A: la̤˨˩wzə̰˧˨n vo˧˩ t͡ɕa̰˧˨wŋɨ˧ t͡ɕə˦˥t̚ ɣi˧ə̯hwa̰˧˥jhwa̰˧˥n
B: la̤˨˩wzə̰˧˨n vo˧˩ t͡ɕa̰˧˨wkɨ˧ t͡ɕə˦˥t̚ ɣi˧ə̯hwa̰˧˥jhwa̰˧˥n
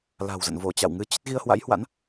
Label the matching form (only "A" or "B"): A